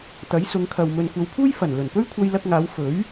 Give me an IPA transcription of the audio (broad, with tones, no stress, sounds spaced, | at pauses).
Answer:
t̪ ɐ˨˥ j s ʊ˨˧ ŋ kʰ ɐ˨ w m ɵ˨ n kʷ ɐ˨˧ w pʰ uː˥ j f ɐ˨˩ n l ɵ˨˩ n p ɵ˥ ɥ kʷʰ ɐ˧ j l ɐ˧ k̚ ŋ aː˨˧ w f ɵ˨˥ ɥ